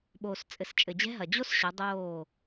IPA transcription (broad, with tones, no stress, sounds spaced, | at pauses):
ɓ oː˨ s t͡sʼ ɘ˨ s t͡ʃʼ ɘ˨ d͡ʑ ɛ̤˦ ɦ ɐ˨ d͡ʑ o˦ s ɕ ɐ˨˦ dˤ oː˦˨